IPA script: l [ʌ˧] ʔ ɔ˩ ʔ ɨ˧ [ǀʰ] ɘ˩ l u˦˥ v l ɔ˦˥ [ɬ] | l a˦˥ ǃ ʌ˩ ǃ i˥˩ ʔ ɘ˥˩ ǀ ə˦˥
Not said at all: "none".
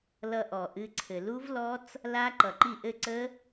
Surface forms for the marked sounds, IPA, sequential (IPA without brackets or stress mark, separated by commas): ʌ˧, ǀʰ, t͡s